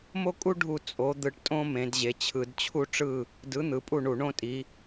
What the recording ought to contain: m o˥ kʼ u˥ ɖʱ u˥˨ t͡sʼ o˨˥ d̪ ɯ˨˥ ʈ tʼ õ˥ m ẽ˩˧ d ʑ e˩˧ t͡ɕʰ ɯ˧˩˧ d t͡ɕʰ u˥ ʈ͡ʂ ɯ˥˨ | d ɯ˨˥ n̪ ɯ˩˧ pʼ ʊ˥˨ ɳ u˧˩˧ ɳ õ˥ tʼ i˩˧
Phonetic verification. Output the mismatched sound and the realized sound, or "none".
ʊ˥˨ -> u˥˨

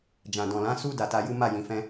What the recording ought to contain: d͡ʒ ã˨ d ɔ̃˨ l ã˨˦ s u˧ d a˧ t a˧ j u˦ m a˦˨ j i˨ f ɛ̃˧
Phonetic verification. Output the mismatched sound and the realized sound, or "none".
i˨ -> ĩ˨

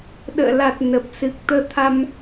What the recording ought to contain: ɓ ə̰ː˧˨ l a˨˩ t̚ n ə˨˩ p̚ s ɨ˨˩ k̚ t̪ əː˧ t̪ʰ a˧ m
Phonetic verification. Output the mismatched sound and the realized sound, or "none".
ɓ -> ɗ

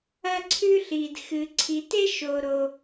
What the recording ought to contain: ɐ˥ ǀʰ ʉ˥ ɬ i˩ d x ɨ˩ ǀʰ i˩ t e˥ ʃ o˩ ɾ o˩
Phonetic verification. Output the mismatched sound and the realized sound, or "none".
none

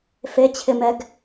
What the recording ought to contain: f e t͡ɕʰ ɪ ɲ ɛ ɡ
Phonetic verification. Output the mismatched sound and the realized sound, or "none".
ɲ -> m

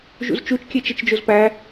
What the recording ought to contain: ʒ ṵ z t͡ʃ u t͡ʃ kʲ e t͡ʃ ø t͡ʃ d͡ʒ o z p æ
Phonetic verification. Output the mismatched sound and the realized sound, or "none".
ø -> e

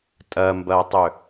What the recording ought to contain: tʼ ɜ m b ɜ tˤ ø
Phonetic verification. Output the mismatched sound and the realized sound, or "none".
none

